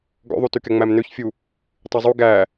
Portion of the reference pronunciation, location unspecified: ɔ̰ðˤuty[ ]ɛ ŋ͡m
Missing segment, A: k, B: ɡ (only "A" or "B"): A